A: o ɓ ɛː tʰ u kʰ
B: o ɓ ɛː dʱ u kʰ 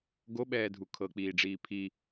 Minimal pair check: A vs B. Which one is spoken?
B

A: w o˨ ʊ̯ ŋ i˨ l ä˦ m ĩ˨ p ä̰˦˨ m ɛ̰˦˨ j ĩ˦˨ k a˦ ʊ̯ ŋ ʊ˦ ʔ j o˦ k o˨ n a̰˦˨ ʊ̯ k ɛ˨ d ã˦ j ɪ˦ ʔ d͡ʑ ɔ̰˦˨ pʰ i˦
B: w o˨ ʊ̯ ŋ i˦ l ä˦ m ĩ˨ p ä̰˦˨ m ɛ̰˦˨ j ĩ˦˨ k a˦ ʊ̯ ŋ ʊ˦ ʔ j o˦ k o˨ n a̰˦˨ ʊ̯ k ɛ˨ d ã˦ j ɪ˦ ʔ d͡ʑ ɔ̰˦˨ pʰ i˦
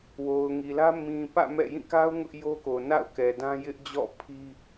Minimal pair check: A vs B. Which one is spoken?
A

